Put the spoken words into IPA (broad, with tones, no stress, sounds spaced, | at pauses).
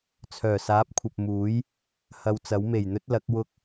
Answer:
t͡sʰ œː˨˩ s aː˨˥ p̚ kʷʰ ɐ˨ p̚ m uː˨˥ j | h ɐ˧ w t͡s ɐ˨˥ w m e˨˩ j n̪ ɵ˥ t̚ l ɐ˨˥ k̚ w ʊ˥ k̚